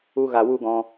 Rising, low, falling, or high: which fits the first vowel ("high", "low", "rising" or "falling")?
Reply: high